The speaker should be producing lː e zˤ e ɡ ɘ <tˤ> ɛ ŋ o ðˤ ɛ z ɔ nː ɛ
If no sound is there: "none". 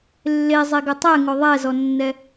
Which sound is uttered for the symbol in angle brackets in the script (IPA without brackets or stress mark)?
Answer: tˤ